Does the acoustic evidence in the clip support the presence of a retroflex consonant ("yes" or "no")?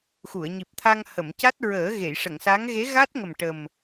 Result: yes